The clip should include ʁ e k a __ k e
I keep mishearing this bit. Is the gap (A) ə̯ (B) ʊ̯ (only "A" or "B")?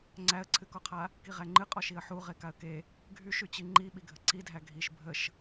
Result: A